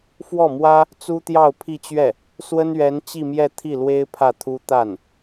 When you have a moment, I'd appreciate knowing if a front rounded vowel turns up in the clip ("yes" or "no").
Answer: no